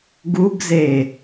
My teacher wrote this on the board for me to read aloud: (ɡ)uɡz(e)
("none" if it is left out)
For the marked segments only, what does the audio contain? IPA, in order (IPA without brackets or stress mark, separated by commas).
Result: ɡ, e